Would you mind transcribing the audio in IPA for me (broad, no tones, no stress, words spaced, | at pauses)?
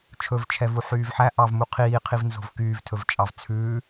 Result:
t͡ʃʰɵvt͡ʃʰɛvu ħyːvħæ ʔɑvmu qʰiːqʰivnzo̤v kyːvtʰɵvt͡ʃʼɑv t͡sʰʉː